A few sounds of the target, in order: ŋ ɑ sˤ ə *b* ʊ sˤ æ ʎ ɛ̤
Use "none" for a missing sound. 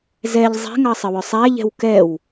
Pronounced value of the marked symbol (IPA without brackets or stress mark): w